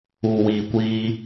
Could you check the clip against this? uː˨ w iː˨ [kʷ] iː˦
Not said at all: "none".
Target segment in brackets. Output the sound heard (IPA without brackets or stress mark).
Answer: kʷ